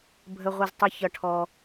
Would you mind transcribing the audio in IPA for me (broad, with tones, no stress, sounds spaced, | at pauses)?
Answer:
bʱ ə˩ ʁʷ ɪ˩ z tˤ ʊ˩ ç ʌ˩ ʈʰ ɔ˩